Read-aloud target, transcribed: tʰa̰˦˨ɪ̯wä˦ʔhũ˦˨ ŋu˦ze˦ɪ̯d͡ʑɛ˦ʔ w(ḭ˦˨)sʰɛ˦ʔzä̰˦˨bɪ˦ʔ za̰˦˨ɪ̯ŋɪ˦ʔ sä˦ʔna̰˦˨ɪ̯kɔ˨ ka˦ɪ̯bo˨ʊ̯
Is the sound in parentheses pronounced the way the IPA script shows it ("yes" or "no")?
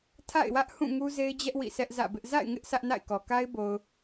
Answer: yes